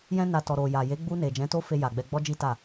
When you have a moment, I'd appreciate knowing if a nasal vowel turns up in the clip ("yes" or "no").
yes